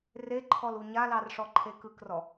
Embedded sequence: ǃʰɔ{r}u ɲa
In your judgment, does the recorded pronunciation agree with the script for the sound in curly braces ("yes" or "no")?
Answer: no